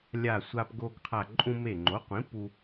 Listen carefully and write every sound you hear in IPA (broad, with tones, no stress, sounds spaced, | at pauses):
lʲ a˧˩ sʷ a˧ p ɡ o˧ ɡ qʰ a˧˩ ǃʼ ũ˧ m e˧˩ ŋ͡ǃ o˩˥ qʷ ĩ˩˥ p u˧